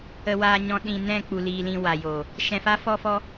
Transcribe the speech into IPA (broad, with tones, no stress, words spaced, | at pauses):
ə˨ waː˨ɲɔ̃˨ ɗĩ˨ nɛ̃˦˨ k͡pu˨liː˨ lĩ˧wa˨jo˨ | ʃɛ̃˧fa˦fɔ˦fɔ˦